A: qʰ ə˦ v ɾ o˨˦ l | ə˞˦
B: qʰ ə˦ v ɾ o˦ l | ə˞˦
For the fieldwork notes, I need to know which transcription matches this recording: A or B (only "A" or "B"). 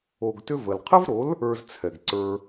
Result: A